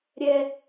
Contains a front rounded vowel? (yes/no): no